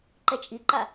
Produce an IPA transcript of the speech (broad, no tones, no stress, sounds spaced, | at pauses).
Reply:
ǃ ɛ t͡ʃʼ i ǃ a